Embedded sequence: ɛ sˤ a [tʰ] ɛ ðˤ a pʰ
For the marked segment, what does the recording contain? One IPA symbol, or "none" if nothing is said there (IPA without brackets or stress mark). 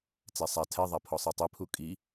tʰ